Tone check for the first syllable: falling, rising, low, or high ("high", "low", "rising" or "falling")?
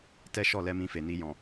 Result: high